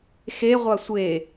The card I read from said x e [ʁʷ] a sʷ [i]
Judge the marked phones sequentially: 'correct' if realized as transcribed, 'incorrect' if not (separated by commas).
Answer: correct, incorrect